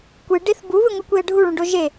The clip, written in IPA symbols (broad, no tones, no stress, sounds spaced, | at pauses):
kʷ ɨ ɖ i θ b u β ɨ ŋʷ ɨ kʷ i ə̯ ɖʱ u ɭ ũ ɖ o ʒ e